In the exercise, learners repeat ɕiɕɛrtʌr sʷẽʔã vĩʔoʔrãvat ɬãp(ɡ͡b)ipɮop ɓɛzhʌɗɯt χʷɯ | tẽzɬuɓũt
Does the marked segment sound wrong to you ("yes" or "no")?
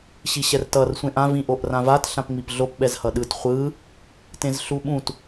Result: yes